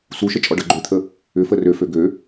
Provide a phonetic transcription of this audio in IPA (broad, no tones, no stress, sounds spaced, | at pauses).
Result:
s u ʃ ə t͡ʃʼ ɔ ɖ ʌ ɡ͡ǃ ø t̪ʰ ə | ʏ f ə r ø f ø ɡ ø